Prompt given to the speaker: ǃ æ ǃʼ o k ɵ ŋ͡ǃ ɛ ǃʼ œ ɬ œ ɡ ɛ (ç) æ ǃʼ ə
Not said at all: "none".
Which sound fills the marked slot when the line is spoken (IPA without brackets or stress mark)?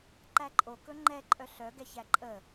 ç